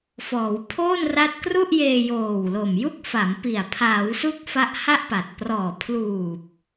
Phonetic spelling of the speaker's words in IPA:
f ɔː˩˦ w pʰ oː˥˩ n r a˦˥ t̚ k r u˥˩ ʔ j eː˧ j oː˨˩ w l o˨˩ m j u˥˩ k̚ f a˩˦ m p i˨˩ a̯ pʰ aː˩˦ w s u˦˥ k̚ f a˦˥ ʔ h a˥˩ ʔ p a˨˩ t̚ p r ɔː˨˩ pʰ l uː˨˩ p̚

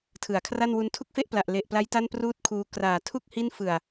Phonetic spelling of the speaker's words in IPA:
tʰ ɯ˩˦ a̯ kʰ r a˥˩ n w u˧ n tʰ u˥˩ k̚ f e˥˩ ʔ p l a˨˩ ʔ l e˨˩ ʔ p l a˦˥ j t a˥˩ n p r uː˥˩ t̚ kʰ uː˧ k r aː˨˩ tʰ u˥˩ k̚ h i˥˩ n f ɯ˨˩ a̯

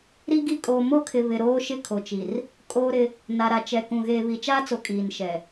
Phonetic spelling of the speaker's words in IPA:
ɾ i˦ ɡ i˦ kʼ oː˨ m o˦ kʰ ɪ˨ β ɪ˨ ɾ oː˦ ʃ ɪ˦ kʰ o˨ t͡ʃ i˨ r | kʼ oː˦ ɾ ɪ˦ | n a˨ ɾ a˨ t͡ʃ ɛ˨ k ũ˨ ɣ eː˨ β i˨ t͡ʃ aː˦ t͡s o˨ kʼ iː˨ n ʃ ɛ˨

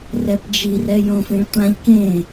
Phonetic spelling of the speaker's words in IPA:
r ɛ p d͡ʒ i r ɛ j õ f ĩ ɭ tʷ ã ʎ k ẽ

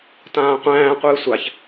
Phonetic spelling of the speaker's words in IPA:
t ãː qʷ æ̃ː qʷ ɨː sʷ a ç

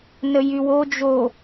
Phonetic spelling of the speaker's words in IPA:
n ə j y w o d͡ʒ o

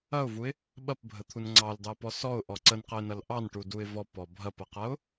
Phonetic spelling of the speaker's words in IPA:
ɐ ʊ̯ v u ɪ̯ | ɓ ɐ p bʱ ə t̪ʰ u n ŋ͡ǀ ɑ l d ɑ p ɔ s ɔ ʊ̯ ʔ ɔ ǀ ə n q ə ɪ̯ n ɐ l ʔ ɑ n ʈ u d u ɪ̯ v ɔ p ɔ bʱ ɐ p ɐ q ɐ ʊ̯

